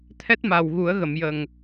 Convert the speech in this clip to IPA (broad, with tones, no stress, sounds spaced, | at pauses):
t̪ʰ ɛ˦˥ t̚ m a˨˩ w ɣ u˨˩˦ ə̯ ɣ ə˨˩˨ m j ə˨˩ ŋ